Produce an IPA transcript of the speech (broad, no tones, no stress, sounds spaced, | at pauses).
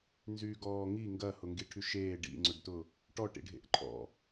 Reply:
n z yː ɡ ɔː ŋ i ŋ ɡ ɐ h ʊ ŋ ɡ i ʈʰ y ʃ eː ɖ ḭ ŋ͡ǀ ʊ ɖ t ʊ | ʈ ɔ ʈ ḭ ɖʱ ḛ ʔ ǃʰ ɔ̰